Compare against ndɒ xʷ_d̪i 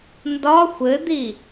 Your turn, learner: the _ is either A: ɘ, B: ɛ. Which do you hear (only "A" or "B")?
A